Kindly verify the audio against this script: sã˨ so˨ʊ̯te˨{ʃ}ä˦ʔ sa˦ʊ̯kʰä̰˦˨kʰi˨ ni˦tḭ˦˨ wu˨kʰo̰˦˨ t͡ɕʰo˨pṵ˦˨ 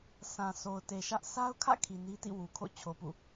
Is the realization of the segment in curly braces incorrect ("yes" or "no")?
no